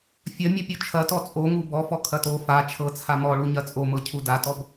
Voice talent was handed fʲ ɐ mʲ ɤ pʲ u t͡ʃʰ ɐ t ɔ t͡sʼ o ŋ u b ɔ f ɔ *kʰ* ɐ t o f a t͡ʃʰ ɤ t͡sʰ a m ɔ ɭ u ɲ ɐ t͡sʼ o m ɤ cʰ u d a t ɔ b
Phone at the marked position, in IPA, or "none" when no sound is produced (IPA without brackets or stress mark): kʰ